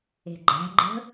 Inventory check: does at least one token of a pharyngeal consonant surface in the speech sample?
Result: no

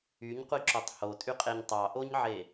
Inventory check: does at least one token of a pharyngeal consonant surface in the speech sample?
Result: yes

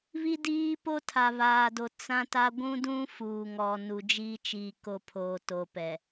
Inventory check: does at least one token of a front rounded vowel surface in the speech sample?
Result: no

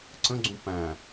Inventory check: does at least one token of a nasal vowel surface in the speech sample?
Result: yes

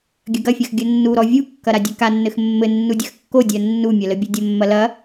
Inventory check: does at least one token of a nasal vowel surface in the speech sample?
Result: no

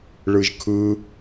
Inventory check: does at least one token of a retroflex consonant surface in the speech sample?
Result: yes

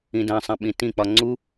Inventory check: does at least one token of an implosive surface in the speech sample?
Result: yes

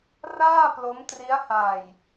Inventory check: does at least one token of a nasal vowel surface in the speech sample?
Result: no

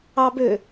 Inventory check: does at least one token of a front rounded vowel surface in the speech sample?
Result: yes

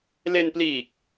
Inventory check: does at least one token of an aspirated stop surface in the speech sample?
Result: no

